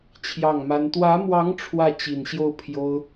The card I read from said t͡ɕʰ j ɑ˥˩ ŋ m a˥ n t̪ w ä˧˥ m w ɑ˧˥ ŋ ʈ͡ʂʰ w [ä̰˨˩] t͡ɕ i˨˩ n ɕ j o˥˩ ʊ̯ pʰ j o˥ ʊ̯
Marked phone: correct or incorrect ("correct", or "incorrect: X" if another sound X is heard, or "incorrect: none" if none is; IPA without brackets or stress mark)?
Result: incorrect: ä˥˩